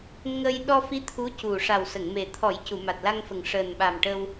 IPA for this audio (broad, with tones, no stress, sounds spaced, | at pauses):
ŋ ə˧ j ɗ ɔ˧ f i˧˥ t̪ʰ u˧˥ c u˨˩ ʂ a˨˩ w s ə˨˩˨ ŋ m e˨˩ t̪ʰ ɔ˨˩˦ j c u˨˩˨ m a˨˩ t̚ l a˧ ŋ f ə˨˩ ŋ ʂ əː˨˩ n ɓ a˨˩ m ʈ ə˧ w